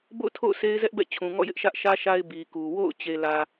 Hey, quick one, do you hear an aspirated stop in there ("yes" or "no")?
yes